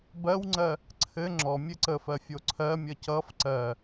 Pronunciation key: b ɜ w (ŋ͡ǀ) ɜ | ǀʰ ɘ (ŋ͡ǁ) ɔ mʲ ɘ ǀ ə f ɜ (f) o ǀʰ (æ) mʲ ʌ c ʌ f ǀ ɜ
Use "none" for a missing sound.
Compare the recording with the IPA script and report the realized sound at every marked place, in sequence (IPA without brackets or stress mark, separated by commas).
ŋ͡ǀ, ŋ͡ǁ, fʲ, ɜ